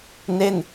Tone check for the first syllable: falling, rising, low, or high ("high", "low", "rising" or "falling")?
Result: falling